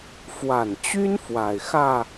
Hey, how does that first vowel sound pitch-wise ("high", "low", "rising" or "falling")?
low